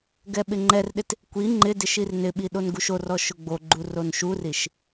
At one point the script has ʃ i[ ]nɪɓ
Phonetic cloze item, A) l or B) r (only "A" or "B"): B